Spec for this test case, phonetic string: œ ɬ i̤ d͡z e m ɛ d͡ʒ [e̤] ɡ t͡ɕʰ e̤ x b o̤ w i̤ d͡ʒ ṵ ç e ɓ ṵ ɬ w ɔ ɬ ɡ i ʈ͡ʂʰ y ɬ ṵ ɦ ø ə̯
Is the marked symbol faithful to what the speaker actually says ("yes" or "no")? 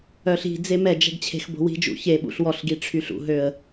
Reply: no